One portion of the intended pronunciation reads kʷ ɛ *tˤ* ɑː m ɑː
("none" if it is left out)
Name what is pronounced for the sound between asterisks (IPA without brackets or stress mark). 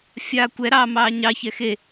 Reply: ɾ